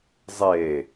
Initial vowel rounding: unrounded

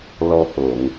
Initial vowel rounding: rounded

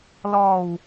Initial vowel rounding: rounded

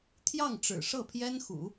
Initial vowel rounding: unrounded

